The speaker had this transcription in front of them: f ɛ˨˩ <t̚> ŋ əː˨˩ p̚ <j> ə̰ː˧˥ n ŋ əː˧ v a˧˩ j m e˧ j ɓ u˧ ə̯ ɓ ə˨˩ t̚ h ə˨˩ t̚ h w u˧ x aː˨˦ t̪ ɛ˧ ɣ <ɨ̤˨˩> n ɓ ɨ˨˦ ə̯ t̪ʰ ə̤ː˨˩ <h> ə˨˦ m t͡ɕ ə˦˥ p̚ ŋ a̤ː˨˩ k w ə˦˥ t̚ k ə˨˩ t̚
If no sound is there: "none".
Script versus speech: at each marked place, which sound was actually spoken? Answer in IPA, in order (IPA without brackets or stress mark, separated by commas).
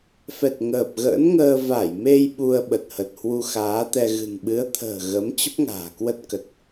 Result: t̚, ɣ, ɨ̤˨˩, ɣ